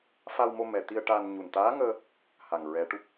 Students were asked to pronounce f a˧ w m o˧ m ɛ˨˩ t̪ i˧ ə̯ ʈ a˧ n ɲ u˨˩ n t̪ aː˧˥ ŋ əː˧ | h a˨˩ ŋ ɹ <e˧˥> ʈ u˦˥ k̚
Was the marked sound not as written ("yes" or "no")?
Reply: yes